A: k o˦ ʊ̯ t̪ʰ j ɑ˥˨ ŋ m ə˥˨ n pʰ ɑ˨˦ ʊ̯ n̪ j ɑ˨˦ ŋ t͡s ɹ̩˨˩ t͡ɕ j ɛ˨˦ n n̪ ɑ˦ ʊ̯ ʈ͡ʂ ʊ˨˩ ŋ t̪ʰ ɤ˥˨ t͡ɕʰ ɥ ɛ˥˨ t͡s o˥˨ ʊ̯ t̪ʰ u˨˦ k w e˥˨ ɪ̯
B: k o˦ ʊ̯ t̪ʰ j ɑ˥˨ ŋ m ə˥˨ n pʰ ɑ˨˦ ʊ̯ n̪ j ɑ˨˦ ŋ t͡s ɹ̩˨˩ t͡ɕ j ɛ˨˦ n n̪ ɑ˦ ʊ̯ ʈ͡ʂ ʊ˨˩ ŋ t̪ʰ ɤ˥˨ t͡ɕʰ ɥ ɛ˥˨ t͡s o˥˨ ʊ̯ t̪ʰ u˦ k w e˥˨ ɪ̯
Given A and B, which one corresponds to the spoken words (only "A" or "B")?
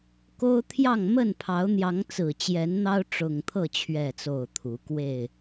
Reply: A